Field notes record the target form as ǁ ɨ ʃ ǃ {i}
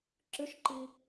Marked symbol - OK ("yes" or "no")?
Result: yes